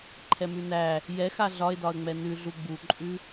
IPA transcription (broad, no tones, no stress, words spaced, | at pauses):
ǃʰɛmʉnæ | jɛxa ɮɒɪ̯dɒə̯ŋ͡mɛ nʉɮu ɡ͡buǃʼʉ